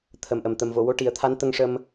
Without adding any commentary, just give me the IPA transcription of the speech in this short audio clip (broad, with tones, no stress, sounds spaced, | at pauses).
t̪ʰ ə˨˩ m ʔ ə˨˩ m t̪ ə˨˩ m v o˨˩˨ w o˧ ʈ i˨˩˦ ə̯ t̪ʰ a˧˥ n t̪ ə˧ ŋ ʂ ə˧ m